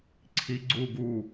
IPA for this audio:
ǀʰi ɡ͡ǀu ɡu

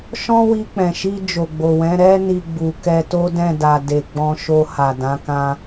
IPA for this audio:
ʃɔ̃˦wi˧k͡pɛ̃˨ʃi˧ d͡ʒo˨ɡ͡bo˨wɛ̃˨˦ ɾɛ˧ni˨ ɡ͡bu˨kɛ˧ to˦dɛ̃˦˨da˨ de˨ɡ͡bɔ̃˧ʃo˧ ha˨dã˨˦kã˦

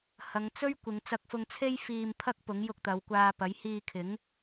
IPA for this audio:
hɐ˨˧ŋt͡sɵ˥ɥ kʷɪ˨˧ŋt͡sɐ˧k̚fʊ˧ŋt͡sʰe˥j fiː˧mpʰɐ˥k̚pʊ˨˥ŋ jʊ˧k̚t̪ɐ˨˧wkʷaː˧ pɐ˨˥jhiː˧kʰɪ˨˥ŋ

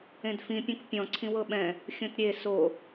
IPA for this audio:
ẽdfĩ pʲõkpʲɔ̃ ǀʰĩwɤɓɛ̃ | xʲõtɾʲe so

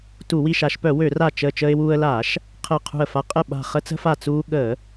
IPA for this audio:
tu˧˩˧wi˧˩ʃa˧˩˧ʃpœ˧˩˧ wø˧˩˧ra˧˩ t͡ʃəː˧˩ t͡ʃəː˧ɪ̯wuː˧ə̯laː˧˩˧ʃ | qʰəː˧˩qʰṳ˧˩ə̯fa˧ qʼə˧˩ ɓa̤˧˩ χə˧t͡sə̤˧fa˧˩ t͡suː˧ɠəː˧˩˧

